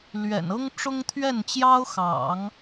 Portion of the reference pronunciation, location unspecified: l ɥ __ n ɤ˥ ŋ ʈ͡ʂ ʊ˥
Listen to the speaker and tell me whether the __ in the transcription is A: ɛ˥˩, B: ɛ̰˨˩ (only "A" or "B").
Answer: B